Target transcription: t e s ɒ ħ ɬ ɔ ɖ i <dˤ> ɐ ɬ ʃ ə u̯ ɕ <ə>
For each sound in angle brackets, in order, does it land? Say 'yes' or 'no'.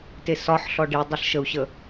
yes, yes

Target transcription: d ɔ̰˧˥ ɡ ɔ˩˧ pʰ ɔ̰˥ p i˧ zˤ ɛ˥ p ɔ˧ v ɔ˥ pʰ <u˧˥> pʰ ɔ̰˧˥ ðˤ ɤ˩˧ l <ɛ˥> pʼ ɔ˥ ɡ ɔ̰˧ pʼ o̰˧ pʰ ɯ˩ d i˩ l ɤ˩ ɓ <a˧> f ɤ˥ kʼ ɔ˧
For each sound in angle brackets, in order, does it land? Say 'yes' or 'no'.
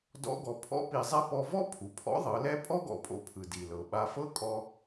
no, no, yes

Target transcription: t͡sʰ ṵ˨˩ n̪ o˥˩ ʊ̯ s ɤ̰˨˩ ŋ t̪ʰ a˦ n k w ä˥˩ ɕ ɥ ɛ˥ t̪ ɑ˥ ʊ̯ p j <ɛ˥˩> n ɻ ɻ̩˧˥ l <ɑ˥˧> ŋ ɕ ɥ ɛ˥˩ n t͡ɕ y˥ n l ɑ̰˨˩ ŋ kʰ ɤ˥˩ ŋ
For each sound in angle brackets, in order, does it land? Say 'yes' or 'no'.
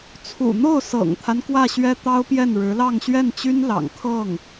yes, yes

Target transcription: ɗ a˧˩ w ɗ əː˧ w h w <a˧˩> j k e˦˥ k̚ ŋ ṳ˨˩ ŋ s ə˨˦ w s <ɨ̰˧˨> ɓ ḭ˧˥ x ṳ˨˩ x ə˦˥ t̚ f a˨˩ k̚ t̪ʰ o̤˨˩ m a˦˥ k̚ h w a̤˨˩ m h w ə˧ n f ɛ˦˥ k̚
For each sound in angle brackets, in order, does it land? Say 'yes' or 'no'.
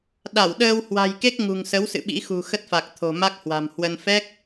no, yes

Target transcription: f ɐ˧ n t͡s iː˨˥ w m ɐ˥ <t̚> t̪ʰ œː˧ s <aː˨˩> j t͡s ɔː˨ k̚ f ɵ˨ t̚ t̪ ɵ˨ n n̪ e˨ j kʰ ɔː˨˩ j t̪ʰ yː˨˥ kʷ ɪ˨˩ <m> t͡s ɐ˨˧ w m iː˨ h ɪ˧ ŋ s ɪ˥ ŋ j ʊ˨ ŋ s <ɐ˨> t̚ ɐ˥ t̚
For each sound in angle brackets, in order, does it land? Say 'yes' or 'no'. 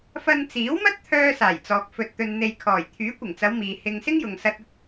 yes, yes, no, no

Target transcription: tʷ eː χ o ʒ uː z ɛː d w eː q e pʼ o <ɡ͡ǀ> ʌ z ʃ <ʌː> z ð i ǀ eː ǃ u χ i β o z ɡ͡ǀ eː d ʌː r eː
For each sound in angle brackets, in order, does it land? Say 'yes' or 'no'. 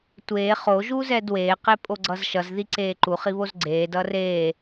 yes, no

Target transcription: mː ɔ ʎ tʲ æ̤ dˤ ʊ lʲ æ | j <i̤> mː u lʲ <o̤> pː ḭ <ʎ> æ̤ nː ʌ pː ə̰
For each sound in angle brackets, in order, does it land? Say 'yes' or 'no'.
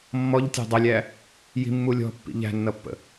yes, no, yes

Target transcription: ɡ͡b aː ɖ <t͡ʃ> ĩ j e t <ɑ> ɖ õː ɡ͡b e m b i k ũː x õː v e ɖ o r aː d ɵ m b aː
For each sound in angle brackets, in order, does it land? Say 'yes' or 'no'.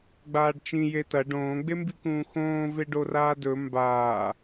yes, no

